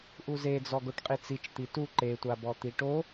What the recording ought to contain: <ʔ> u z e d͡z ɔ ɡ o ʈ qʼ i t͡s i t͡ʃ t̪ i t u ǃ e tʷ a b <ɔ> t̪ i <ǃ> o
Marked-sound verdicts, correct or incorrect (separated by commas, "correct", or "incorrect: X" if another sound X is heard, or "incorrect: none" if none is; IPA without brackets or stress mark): correct, correct, incorrect: ʈ